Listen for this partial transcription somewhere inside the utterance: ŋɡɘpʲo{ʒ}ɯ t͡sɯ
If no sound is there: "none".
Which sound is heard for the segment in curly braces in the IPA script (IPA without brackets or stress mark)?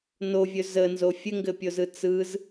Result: z